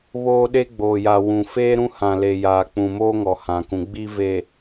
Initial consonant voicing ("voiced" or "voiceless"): voiced